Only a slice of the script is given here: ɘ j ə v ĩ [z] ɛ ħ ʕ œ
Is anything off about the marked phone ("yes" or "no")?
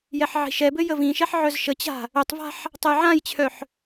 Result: yes